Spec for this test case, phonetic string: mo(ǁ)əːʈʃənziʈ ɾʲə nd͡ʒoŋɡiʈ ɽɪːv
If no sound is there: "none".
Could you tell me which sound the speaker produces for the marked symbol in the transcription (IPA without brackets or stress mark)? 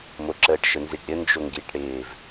ǁ